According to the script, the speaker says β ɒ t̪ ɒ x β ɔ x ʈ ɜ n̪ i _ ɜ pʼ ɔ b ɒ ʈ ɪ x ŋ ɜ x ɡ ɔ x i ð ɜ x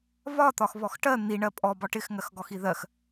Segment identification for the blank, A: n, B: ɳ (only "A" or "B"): B